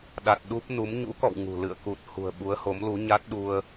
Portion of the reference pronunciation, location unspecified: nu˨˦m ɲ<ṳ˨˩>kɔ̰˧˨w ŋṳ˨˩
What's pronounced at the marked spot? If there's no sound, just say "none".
ṵ˧˥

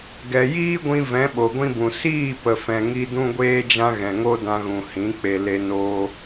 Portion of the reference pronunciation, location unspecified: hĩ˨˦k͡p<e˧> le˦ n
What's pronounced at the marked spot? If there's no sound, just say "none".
e˧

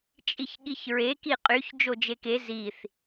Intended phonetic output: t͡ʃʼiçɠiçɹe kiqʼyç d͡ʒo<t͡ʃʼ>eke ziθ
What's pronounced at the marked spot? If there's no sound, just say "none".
d͡ʒ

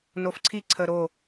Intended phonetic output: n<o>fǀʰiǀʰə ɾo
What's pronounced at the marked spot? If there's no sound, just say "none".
o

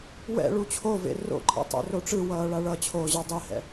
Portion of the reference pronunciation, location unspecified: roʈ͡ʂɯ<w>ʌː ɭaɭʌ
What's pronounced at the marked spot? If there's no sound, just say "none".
w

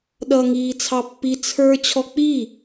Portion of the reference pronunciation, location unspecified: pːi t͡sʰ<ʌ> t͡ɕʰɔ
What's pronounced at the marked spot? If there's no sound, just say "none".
ə˞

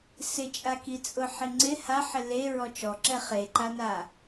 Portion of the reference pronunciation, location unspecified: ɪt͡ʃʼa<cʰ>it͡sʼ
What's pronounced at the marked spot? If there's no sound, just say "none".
k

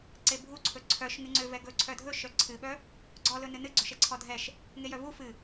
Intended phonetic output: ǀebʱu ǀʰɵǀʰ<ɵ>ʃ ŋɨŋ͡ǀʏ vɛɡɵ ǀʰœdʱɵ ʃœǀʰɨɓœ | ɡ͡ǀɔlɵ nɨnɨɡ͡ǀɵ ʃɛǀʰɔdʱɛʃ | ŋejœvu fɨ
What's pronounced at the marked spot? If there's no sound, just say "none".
œ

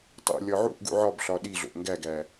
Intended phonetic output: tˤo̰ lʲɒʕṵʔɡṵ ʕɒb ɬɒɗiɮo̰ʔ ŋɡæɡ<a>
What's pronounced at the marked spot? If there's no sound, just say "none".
æ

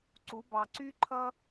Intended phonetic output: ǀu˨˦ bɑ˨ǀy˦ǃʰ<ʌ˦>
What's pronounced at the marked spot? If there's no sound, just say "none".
ʌ˦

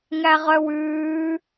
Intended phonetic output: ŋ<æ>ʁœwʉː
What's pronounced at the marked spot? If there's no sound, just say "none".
æ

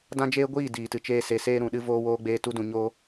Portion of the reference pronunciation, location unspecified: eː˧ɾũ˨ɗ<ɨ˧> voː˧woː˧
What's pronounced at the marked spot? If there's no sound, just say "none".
ɨ˧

